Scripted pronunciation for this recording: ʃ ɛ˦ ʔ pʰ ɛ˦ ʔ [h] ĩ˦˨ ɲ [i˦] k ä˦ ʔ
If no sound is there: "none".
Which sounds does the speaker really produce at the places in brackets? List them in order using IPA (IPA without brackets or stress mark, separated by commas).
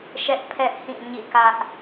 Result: h, ḭ˦˨